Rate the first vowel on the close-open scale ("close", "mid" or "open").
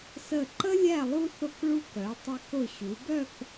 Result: mid